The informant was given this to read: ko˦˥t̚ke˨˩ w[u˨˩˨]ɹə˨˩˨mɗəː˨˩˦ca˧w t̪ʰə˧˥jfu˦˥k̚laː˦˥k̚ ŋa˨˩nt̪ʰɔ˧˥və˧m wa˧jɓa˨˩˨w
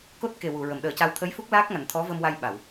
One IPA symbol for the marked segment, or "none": u˨˩˨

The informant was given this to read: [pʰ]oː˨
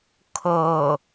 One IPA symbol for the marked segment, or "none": kʰ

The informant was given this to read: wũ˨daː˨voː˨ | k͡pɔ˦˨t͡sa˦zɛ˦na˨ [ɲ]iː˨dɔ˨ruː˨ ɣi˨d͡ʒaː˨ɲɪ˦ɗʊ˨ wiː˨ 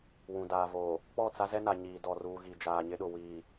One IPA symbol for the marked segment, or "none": ɲ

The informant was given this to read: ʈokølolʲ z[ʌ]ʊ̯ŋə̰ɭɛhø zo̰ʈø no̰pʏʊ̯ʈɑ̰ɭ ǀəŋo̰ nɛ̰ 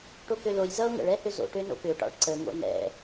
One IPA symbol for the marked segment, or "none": ʌ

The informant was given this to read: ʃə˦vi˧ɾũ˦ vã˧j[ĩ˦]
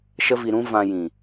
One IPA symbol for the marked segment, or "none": ĩ˨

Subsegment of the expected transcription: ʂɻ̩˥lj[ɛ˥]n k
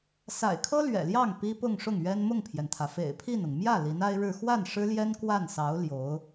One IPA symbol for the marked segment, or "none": ɛ˥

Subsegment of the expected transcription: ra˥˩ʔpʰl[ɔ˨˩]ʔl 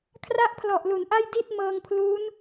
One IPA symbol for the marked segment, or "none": ɔ˨˩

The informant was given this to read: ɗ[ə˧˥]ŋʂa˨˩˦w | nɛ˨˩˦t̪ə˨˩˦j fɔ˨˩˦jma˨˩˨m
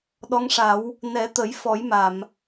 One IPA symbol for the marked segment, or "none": ɔ˧˥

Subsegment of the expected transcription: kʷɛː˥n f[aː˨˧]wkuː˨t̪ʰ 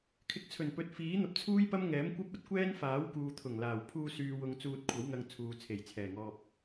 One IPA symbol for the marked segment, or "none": aː˨˥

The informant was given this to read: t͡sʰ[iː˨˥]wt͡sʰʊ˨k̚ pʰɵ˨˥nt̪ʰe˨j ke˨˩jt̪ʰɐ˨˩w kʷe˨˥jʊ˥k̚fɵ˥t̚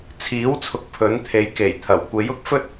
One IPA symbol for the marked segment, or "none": iː˨˥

